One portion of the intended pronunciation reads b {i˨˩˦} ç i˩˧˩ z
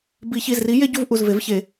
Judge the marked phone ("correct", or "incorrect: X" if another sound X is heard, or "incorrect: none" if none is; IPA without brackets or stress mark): correct